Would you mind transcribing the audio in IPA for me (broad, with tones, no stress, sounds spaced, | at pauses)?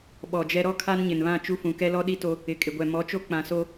ɓ ɔ˨ d͡ʒ ɛ˦ ɾ ɔ˦ kʰ a˦ n ɲ ɪ˨ n β ã˦˨ t͡ʃ u˦ f ũ˨ k ɛ˦ l ɔ˦ ɗ i˦ t o˦ | ɪ˨ kʼ ɪ˨ ɡʷ ɛ˨ m ɔ˨˦ t͡ʃ o˦ k͡p ã˨ s o˦